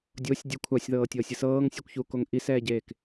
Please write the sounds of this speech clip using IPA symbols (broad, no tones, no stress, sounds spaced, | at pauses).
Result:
dʲ o sʲ dʲ ɯ kʷʰ a sʲ ð ɤː tʲ ɤː sʲ ɯ s ɤː ŋ sʲ u kʷ ç u k o ŋ ʔ i s ɛː ɟ eː k